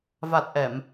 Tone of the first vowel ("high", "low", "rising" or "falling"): low